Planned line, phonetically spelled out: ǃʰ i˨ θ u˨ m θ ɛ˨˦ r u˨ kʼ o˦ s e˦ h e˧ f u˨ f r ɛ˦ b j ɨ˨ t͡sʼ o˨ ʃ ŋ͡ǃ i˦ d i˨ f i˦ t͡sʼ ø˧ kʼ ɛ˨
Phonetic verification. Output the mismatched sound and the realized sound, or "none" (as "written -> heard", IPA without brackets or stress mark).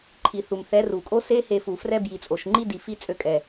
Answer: ɨ˨ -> i˨